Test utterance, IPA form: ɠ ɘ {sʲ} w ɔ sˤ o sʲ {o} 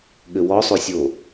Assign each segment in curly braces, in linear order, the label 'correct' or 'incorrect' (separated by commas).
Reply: incorrect, correct